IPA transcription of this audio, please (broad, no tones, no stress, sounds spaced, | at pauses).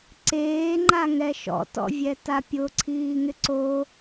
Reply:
ǀ eː ŋ͡ǃ a ŋ ɛ ʃ ɔ̰ t ɔ̰ vʲ ɛ t a pʲ ʊ ǀʰ iː ŋ ɪ ǀ o